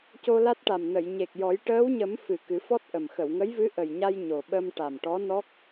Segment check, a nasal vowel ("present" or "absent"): absent